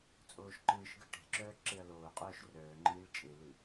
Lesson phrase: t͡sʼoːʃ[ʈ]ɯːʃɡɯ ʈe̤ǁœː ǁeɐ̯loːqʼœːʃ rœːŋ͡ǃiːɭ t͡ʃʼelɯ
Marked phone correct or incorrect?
incorrect